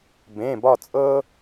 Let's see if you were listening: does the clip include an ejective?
yes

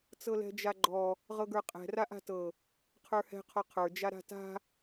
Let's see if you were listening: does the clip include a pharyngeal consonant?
no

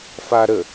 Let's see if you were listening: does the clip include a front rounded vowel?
no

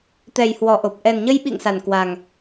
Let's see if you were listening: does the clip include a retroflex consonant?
no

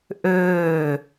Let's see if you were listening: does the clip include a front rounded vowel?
yes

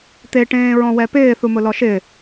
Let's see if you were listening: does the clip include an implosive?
no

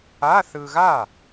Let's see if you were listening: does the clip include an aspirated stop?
no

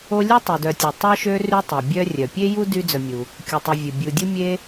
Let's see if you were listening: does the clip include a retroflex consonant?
no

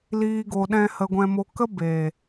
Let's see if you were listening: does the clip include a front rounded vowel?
no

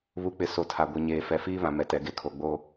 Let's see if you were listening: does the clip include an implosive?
no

